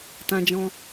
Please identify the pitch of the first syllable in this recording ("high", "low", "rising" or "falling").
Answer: high